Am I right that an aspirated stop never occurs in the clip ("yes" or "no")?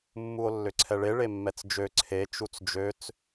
no